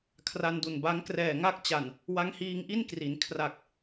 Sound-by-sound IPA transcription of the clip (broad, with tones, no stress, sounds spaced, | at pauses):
kʰ r a˧ n d u˨˩ n b a˦˥ ŋ k r ɛː˨˩ ŋ a˥˩ k̚ t͡ɕ a˨˩ n | w a˦˥ ŋ h iː˧ ŋ ʔ i˥˩ n k r i˩˦ n kʰ r a˨˩ k̚